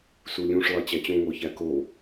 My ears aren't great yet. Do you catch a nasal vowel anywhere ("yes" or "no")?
yes